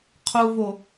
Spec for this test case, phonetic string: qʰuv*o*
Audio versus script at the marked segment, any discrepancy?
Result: no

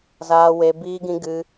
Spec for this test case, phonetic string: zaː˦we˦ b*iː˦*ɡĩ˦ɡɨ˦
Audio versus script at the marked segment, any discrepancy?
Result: no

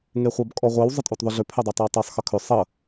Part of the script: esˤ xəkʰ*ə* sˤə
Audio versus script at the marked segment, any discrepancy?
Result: yes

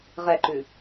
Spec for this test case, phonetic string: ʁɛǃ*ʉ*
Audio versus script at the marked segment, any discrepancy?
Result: no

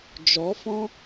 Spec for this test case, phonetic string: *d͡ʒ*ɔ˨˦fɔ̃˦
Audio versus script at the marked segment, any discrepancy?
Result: no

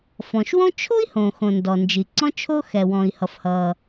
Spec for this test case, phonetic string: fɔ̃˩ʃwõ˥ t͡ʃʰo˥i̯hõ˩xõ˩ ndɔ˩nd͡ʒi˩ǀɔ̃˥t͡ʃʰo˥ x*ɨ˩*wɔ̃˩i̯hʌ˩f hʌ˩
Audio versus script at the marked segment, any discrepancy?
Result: yes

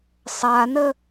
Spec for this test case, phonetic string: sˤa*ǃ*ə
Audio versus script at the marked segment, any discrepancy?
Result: yes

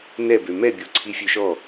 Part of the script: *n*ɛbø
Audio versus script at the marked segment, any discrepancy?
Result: no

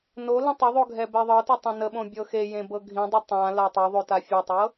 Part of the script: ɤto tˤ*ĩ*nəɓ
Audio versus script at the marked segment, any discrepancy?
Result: no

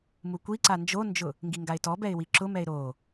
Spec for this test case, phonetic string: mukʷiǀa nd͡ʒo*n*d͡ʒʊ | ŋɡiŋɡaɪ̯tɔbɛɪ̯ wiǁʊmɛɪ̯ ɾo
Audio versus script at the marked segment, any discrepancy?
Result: no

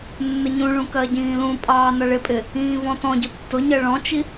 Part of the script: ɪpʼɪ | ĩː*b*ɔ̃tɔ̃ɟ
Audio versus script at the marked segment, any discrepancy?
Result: yes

